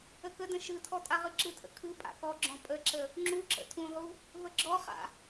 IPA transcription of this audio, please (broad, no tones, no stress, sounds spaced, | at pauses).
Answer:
ə k ə d ə̃ ʃ ɯ tʰ ɔ tʼ a ʁ ɯ ǁ ɯ tʰ ə̰ kʰ ɯ pʼ a̰ k ɔ ɡ͡ǁ ɔ̃ pʼ ə ǁ ə | ŋ͡ǁ u ǁ ə̰ tʰ ũ ʁ u | v ə ɡ͡ǁ ɔ χ a̰